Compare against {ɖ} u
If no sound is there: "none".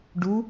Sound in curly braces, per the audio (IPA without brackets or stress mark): ɖ